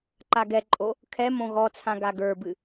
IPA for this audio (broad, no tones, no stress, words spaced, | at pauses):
ǃaɡɛǃʼo | kʰɛ mõɣɔt͡sʰã ɡaɡə˞bɨ